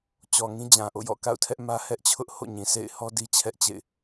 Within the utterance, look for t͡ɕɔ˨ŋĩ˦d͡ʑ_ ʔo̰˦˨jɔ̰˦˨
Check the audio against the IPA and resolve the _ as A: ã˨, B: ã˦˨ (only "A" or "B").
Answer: A